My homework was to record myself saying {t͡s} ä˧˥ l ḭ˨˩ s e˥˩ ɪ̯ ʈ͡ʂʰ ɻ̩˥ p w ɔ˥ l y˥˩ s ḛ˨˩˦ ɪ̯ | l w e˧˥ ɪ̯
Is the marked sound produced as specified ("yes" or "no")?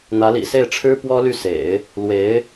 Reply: no